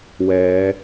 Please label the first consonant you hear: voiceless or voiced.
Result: voiced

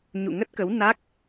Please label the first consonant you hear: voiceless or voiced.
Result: voiced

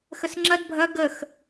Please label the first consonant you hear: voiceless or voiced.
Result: voiceless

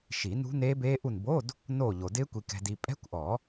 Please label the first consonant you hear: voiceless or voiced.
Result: voiceless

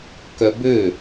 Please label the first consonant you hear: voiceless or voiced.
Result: voiceless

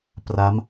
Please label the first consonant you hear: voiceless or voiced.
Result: voiceless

